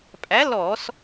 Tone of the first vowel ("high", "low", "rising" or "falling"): rising